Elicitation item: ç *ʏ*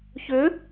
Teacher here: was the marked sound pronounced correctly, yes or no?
yes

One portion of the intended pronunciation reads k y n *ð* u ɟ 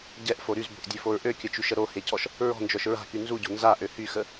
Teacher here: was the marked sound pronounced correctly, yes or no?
no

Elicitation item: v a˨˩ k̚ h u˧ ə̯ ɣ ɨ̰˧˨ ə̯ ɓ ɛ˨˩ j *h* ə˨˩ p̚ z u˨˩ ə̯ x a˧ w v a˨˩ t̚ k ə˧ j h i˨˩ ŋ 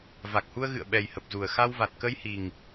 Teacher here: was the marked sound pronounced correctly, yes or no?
yes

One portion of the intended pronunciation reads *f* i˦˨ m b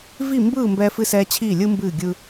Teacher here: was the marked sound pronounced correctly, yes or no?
no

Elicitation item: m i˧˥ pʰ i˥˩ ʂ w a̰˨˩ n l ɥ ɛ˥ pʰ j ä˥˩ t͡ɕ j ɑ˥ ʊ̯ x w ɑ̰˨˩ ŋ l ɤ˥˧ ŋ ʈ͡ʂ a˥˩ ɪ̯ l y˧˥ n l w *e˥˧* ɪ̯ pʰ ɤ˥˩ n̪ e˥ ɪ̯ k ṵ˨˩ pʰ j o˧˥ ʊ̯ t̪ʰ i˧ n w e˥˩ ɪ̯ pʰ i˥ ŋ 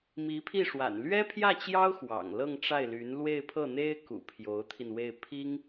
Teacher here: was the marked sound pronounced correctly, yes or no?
yes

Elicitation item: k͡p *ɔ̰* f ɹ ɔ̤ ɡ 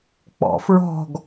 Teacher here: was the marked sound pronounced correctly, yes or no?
yes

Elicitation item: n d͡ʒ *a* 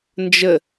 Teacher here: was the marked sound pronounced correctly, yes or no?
no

